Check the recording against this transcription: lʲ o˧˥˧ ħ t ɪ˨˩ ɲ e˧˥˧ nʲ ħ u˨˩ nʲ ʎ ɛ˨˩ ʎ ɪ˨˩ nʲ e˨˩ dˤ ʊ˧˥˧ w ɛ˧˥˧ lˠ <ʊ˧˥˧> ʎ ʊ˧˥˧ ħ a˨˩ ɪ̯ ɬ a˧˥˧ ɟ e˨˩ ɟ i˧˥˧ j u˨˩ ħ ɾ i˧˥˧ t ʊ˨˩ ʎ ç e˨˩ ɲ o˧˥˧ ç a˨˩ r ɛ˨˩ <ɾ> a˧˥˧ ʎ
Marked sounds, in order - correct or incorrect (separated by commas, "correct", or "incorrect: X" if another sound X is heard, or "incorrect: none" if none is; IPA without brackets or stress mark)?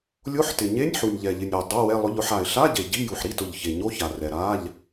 correct, correct